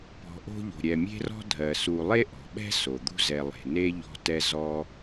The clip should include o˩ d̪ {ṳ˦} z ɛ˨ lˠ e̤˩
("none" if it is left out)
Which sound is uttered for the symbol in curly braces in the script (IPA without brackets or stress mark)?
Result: ṳ˦